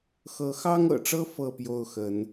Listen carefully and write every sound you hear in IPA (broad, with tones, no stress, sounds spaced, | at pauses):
x ɤ˨˦ x ɑ˦ ŋ ɤ̰˨˩ ʈ͡ʂ ɤ˦ f ɤ˥˨ p j o˥˨ ʊ̯ x ə˨˦ n